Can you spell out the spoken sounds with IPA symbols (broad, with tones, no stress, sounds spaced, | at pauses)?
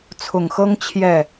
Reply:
t͡sʰ ʊ˨˩ ŋ x ɤ˥ ŋ t͡ɕʰ j ɛ˥˩